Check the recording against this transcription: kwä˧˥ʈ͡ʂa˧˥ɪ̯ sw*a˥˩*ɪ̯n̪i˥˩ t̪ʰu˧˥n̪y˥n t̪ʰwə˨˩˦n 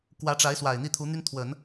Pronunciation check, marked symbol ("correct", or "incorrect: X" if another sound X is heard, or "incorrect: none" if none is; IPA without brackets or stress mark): incorrect: a˨˩